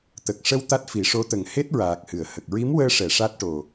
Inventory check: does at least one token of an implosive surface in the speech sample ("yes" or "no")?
no